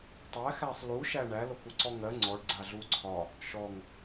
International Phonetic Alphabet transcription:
tˤ æ x æ sˤ l u ʃ æ ɳ æ l o k u ǀ ɔ ŋ ɜ ŋ͡ǀ ɔ ɖ ɡ͡ǀ a ɮ u ǀʰ ɒ | ʃ ɔ ŋ

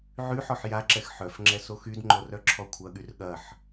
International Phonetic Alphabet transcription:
ʕ y ħ ɔ ħ j a ǁ ɛ x ħ œ f ŋ͡ǁ ɛ s o x y d ŋ͡ǃ o r œ ǁʰ ɔ kʷʰ ɐ ɠ y r ɠ ɐ ħ

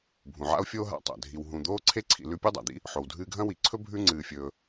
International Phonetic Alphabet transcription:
bʱ ũ˩ ʕ a̰˦ o̯ fʲ oː˦ ɦ a̰˨ tˤ a̰˩ dʱ i˨ w ɦ ũ˨ d̪ oː˥ ǀʰ e˥ ǀʰ ḭ˨ l ʉ˦ pʲ u˥ dˤ a̰˩ d̪ ḭ˥ | ħ o˨ w dʱ ɨː˦ ɡʱ ɐ̃˥ w i˨ ǀʰ ɵ˥ bʱ ʉ˦ ŋ͡ǀ ɨː˨ fʲ ɵː˨

